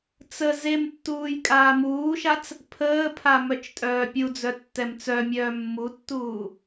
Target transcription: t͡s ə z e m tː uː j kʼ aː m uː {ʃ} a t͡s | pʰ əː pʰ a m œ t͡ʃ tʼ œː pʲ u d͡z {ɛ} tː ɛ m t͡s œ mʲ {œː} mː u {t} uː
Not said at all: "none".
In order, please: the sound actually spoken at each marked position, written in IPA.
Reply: ʃ, œ, œː, tː

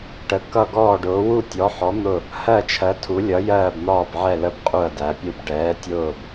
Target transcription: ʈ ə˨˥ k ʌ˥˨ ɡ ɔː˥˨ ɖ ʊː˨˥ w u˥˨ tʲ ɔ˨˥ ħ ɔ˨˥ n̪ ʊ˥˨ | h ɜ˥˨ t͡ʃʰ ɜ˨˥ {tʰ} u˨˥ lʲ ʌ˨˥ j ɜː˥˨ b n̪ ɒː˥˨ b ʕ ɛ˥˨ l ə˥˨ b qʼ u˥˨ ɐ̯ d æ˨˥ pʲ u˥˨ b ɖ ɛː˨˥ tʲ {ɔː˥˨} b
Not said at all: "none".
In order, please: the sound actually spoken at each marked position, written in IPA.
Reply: tʰ, ʊː˥˨

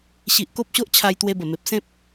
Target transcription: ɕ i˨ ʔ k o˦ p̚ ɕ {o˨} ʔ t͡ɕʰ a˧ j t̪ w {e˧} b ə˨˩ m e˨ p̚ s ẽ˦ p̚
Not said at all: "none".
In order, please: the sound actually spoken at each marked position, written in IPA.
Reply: o˦, e˧

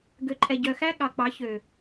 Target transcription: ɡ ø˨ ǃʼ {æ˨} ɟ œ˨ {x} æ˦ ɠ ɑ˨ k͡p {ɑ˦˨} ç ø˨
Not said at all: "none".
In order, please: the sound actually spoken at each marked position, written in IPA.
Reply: ɛ˨, x, ɑ˨˦

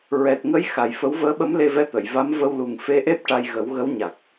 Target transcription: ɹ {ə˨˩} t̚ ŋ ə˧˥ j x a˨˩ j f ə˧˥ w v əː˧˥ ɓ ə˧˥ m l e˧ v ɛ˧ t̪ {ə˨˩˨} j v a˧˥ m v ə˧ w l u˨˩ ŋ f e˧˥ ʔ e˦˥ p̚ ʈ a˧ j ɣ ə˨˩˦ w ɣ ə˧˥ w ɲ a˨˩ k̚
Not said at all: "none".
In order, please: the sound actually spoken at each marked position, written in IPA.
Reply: ɛ˨˩, ə˨˩˨

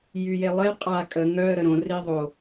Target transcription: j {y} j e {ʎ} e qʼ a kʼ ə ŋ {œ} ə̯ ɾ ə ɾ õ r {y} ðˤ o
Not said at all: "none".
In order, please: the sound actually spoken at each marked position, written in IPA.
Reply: y, lˠ, œ, i

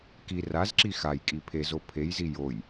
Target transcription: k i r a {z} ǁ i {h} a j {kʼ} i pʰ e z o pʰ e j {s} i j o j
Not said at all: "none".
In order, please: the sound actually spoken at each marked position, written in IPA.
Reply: z, x, kʼ, z

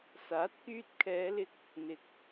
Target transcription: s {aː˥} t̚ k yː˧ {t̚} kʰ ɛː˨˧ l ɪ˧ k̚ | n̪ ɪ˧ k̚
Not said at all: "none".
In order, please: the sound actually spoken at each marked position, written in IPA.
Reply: aː˨˥, t̚

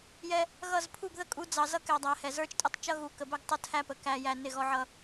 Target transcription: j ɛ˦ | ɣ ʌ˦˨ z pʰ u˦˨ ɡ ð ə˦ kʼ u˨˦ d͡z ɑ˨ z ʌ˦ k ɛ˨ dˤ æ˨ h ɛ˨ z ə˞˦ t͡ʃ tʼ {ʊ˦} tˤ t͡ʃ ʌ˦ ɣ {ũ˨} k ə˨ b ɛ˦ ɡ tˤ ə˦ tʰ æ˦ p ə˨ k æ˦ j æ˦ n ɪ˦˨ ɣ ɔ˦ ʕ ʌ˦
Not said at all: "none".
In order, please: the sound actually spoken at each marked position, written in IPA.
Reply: ʊ˦, u˨

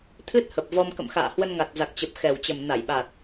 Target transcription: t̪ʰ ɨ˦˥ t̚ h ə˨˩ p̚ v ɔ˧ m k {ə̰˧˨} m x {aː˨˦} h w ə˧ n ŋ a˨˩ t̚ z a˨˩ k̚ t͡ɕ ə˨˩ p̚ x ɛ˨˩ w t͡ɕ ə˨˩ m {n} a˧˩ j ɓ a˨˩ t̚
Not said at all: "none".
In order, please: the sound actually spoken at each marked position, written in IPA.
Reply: ə̰˧˨, a̰ː˧˨, n

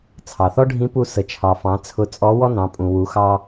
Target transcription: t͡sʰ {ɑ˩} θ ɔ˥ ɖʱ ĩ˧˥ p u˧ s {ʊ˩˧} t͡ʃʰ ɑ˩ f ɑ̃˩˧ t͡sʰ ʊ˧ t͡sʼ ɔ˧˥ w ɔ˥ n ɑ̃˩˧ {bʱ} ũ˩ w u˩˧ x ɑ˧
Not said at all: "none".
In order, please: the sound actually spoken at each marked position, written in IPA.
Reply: ɑ˩, ə˩˧, pʼ

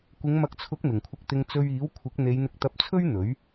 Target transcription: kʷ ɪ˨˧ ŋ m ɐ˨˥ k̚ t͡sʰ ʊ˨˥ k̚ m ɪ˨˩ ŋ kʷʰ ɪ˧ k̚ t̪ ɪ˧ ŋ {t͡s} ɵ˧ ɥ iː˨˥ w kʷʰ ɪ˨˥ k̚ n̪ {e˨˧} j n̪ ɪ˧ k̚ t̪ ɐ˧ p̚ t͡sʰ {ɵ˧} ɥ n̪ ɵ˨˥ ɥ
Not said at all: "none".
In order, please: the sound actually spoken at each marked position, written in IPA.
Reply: t͡s, e˨˧, ɵ˥

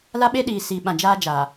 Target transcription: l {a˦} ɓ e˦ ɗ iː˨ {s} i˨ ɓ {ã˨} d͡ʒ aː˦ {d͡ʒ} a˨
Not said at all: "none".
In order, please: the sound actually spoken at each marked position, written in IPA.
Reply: a˦, s, ã˨, d͡ʒ

